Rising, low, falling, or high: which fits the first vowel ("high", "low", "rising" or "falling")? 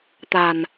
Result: low